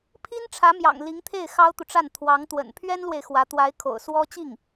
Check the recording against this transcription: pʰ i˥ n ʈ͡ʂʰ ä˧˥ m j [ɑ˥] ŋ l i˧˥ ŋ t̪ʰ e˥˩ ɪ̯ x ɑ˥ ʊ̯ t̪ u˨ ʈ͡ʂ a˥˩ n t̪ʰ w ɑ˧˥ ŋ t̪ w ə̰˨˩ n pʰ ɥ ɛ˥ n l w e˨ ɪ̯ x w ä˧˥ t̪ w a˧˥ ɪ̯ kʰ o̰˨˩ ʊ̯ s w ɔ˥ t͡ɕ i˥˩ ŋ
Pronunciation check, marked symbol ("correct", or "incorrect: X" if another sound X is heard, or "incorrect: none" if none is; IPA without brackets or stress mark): incorrect: ɑ̰˨˩